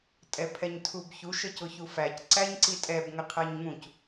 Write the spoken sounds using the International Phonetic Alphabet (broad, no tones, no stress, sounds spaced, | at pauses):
tʼ ɛ pʰ ɛ ɲ tʰ u b ç u ʃ ə c ʊ ç u f æ c ǀ æ ɲ ǀ i tʼ ɛ b ŋ ə qʰ æ ɲ ŋ ũ c